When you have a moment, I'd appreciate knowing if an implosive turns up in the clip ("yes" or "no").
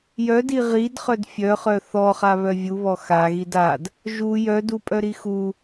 no